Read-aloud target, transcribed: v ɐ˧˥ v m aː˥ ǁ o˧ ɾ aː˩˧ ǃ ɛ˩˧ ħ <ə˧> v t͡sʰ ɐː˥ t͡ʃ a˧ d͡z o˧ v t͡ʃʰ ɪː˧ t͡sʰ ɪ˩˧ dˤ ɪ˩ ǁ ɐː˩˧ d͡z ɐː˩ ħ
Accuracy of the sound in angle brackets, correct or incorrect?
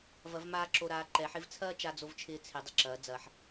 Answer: incorrect: ɪ˧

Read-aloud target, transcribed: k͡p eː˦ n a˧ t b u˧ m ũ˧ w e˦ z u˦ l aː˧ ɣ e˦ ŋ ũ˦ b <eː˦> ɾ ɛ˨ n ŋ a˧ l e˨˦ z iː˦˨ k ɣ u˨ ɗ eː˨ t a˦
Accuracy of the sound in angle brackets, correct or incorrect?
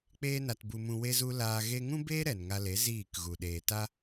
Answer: correct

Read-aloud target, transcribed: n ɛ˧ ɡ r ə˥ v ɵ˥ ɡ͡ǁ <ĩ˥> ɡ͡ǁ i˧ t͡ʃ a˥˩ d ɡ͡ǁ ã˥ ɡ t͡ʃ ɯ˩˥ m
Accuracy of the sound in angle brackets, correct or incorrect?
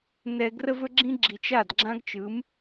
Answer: correct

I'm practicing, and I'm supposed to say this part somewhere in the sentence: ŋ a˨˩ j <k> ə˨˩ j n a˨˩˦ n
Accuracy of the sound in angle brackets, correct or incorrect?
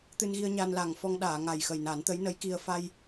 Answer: incorrect: x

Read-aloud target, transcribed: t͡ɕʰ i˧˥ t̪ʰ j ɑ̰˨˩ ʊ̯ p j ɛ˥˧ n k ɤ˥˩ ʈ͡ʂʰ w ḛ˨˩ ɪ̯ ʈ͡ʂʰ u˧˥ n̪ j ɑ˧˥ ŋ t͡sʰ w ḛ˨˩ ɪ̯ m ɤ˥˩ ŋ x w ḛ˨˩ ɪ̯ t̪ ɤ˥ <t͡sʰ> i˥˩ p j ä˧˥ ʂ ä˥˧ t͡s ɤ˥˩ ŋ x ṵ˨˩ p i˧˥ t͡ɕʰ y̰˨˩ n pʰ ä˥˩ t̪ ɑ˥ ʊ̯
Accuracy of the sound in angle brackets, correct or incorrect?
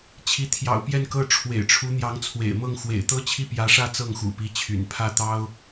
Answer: incorrect: t͡ɕʰ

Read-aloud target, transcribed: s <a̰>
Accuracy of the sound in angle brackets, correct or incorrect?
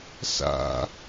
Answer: correct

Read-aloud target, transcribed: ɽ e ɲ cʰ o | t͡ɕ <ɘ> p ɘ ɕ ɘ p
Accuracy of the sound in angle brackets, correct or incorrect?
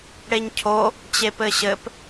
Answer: incorrect: e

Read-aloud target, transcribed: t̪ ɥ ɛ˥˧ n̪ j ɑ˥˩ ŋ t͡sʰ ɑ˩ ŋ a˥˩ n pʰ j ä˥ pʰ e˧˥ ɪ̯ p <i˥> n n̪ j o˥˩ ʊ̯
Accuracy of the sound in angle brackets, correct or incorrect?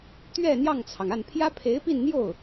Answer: incorrect: i˥˧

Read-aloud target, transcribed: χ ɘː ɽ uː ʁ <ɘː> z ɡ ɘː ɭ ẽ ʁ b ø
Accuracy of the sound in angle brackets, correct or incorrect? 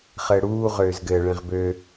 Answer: incorrect: øː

